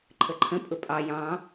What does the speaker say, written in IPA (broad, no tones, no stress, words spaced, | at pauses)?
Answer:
ǃʰəǃʰə̃ pʼʊpʼɑ jɑ̃